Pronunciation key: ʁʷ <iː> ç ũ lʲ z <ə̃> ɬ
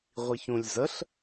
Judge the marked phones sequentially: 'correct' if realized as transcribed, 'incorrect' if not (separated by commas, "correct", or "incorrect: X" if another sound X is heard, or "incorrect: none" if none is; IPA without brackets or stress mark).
incorrect: i, incorrect: ə